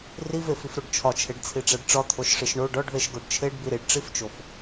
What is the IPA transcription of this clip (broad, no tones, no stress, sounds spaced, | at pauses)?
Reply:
r i v e f i f ɾ o ɖ t͡ʃʰ ɒ t͡ʃʰ e ɖ t͡sʰ i ʈ͡ʂ æ ɖ ʈ͡ʂ ɒ t̪ʰ o ʃ ʂ i ʃ ɳ o ɖ ɒ ɖ ð e ʃ ɡ o ɖ t͡ʃʰ e ɖ b i ɾ i ɖ ʈ͡ʂ i f t͡ʃ o f